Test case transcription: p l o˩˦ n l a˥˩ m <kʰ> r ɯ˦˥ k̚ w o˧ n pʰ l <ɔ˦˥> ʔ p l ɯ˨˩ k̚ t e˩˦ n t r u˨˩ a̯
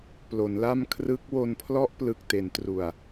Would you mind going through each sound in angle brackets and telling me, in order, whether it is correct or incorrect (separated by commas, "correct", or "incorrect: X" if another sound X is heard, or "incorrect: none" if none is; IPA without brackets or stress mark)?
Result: correct, correct